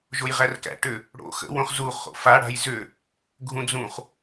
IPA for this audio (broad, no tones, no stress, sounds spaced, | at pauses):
ʒ o j ʁ æ r k æ̰ ʈ ʏ | ɽ o̰ x ə̰ w õ χ z u χ o̰ f a ɽ a̤ j z ʏ | ɡʱ ũ d͡z ũ χ